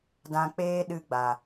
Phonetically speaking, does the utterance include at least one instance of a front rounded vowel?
no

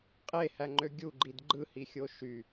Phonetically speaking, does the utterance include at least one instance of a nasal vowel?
no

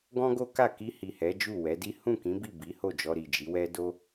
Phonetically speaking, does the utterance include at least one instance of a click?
no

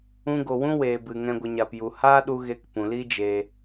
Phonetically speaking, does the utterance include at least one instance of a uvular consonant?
no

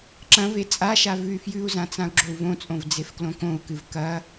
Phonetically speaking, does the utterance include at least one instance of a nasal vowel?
yes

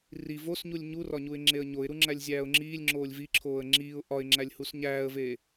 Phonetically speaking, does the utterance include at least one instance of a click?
yes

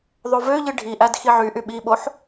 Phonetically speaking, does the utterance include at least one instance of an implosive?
yes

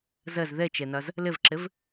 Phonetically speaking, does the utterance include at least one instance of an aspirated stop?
no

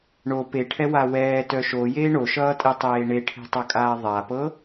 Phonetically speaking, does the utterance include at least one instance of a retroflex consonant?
yes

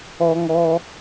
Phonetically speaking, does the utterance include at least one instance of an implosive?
no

